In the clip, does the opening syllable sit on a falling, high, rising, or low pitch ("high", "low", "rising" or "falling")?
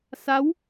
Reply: rising